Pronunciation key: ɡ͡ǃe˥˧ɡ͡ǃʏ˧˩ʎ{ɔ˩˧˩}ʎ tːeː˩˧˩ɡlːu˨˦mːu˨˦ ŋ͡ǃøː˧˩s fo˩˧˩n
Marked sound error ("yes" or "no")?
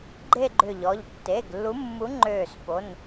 no